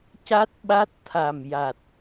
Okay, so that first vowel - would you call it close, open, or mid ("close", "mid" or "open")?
open